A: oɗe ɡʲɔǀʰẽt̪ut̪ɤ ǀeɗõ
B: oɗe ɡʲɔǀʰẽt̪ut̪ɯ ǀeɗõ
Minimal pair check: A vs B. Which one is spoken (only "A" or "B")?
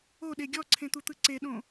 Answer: B